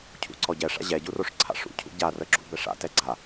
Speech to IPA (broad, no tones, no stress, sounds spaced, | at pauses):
cʰ ṵ ǀ ɔ ɟ ɛ ʂ a̰ ʑ ɛ ɟ u r o ʂ ǀʰ a̰ ʂ ṵ cʰ ṵ ɟ a r ə ɡ͡ǁ ṵ b ɛ ʂ a̰ t ɛ ɡ͡ǀ a